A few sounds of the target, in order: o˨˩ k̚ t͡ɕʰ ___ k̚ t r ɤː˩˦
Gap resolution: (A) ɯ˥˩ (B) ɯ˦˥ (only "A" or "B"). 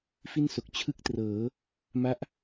A